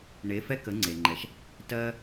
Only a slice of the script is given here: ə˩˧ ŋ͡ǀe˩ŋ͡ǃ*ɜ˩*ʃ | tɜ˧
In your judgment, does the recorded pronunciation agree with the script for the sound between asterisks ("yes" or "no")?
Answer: no